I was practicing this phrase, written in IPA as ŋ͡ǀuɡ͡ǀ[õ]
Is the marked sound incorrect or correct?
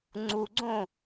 correct